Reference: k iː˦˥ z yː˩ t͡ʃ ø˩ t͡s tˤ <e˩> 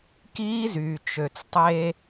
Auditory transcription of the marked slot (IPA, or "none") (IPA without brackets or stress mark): e˧